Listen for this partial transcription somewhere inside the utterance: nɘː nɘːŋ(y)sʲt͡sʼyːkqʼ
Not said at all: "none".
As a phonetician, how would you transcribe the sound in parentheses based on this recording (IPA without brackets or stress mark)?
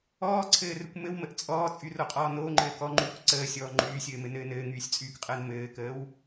yː